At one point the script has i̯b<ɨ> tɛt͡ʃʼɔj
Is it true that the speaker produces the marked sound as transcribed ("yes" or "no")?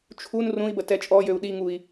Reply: no